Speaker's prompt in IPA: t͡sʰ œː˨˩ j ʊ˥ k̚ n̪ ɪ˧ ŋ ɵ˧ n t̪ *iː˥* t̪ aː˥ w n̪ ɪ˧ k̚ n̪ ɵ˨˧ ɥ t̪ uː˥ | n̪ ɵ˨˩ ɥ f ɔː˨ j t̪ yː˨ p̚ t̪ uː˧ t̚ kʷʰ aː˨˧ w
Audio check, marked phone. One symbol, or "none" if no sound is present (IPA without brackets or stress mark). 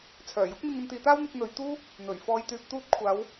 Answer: iː˨˧